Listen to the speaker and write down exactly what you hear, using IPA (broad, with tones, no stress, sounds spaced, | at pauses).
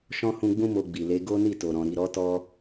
ʃ ɔ̃˦ h ũ˧ ɡ͡b ũ˦ m o˧ ɡ͡b i˨ l e˨˦ ɡ o˦ n i˦˨ t o˨ ɾ ɔ̃˨ ɾ i˨ ɾ ɔ˨˦ t ɔ˧